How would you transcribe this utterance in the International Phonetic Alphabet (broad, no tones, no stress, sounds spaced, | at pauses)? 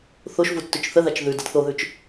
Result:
θ o ʃ v u tː ʉ t͡ʃ θ ə ð a t͡ʃ ð ʉ d ə d θ o ð ʉ t͡ʃ